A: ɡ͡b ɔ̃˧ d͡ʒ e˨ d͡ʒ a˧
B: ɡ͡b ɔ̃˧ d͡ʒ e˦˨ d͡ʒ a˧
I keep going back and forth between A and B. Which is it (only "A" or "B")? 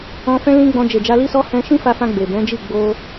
A